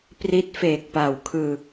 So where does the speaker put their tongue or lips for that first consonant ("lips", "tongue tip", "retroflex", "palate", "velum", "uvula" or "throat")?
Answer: lips